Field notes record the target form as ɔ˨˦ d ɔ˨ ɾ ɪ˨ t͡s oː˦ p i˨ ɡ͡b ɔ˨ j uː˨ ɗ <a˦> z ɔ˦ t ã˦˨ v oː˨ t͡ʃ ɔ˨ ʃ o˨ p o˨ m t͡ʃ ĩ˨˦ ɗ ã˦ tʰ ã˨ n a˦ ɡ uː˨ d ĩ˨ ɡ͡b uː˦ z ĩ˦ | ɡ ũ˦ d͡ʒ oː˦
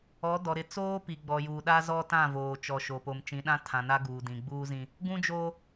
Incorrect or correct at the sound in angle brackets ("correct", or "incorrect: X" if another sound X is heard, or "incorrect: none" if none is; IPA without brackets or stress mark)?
correct